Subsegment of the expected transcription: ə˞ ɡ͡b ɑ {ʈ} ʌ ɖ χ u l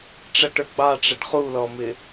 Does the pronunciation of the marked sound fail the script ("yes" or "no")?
yes